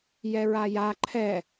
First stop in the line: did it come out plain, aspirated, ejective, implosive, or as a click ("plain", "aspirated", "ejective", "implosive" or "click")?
click